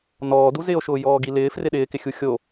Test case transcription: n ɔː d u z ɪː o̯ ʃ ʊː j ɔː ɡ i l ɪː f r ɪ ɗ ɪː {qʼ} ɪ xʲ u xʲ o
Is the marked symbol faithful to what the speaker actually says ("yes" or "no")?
no